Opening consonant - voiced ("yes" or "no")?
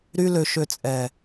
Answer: yes